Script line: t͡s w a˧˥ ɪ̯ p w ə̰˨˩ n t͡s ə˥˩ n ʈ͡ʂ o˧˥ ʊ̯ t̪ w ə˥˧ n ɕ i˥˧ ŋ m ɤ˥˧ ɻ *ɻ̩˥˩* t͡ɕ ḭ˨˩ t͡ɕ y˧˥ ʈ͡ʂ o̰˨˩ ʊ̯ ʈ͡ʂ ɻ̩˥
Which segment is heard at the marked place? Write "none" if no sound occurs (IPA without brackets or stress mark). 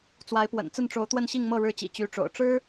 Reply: ɻ̩˥˩